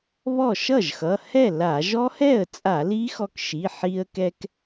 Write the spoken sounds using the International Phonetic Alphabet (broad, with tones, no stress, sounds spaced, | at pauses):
β ɔ˥˩ ʃ ʌ˥˩ ʒ x ʌ˩˧˩ h ɛ˥˩ l a˧˩˧ ʒ ɔ˦˥ h ɛ˥˩ ə̯ t͡sʼ a˧˩˧ l i˦˥ x ɔ˧ k ʃ i˩˧˩ ħ i˧ ə̯ k ɛ˧ k